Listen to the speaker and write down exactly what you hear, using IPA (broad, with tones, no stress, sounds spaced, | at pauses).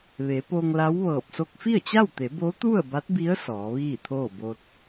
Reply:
ʋ e˩˧ p o˧ ŋ l a˧˥ w ʋ ɤː˧˩ p̚ s o˧ k̚ f i˥˨ ə̯ t͡ɕ a˥˨ w t̪ e˩˧ b o˧˥ t̪ u˥˨ ə̯ b a˧˥ t̚ b i˧˥ ə̯ s ɔː˩˧ ʋ iː˥˨ t̪ʰ oː˥˨ b o˧ t̚